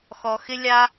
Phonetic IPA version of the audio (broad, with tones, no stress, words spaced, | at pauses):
xɔ˦ xɪ˥lʲa˥